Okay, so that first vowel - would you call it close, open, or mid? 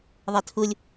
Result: mid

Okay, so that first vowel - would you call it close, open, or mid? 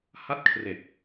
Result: open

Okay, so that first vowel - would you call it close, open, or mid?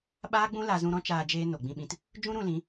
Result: open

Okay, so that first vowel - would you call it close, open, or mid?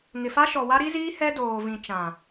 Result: close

